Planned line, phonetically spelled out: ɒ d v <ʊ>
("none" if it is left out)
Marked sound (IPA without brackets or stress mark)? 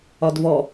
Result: ɔ